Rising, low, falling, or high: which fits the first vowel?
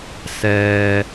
low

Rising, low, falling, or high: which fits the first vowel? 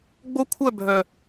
high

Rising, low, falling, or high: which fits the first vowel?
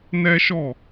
high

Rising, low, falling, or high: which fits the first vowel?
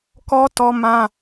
high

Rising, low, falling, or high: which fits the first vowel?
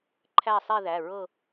falling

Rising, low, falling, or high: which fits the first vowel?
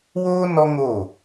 high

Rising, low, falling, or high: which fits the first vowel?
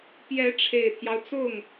rising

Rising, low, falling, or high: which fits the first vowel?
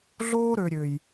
high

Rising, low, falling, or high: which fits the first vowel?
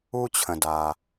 high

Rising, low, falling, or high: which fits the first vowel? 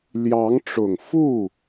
rising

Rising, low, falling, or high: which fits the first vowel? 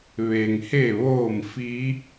low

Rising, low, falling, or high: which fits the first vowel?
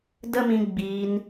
high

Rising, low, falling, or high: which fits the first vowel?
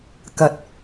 low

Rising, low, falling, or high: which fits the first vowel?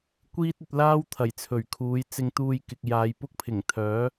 high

